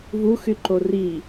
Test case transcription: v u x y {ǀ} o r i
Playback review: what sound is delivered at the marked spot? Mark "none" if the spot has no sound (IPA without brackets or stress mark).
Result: ǃ